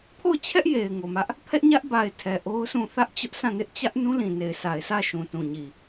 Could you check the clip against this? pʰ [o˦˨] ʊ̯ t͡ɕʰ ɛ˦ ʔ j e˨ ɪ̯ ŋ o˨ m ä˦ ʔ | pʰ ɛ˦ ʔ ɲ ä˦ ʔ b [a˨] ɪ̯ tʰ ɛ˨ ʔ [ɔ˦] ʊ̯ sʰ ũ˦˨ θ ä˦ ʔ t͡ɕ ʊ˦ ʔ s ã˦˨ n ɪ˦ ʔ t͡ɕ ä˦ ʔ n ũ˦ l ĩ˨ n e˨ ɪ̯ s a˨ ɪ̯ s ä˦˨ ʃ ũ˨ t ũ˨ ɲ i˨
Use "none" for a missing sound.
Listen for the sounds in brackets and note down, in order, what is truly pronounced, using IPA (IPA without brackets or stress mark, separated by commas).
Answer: o˦˨, a˨, o˦